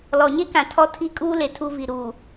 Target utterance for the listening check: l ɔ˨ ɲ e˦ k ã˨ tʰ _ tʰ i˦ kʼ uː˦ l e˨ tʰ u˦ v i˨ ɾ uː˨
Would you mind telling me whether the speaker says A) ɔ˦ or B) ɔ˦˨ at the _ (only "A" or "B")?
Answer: A